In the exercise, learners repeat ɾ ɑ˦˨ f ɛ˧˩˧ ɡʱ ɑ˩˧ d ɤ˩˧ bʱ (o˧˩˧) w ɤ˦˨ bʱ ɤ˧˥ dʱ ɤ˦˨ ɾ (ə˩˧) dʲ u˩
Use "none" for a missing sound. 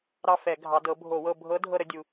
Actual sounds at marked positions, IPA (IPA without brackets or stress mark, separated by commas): o˧˩˧, ə˩˧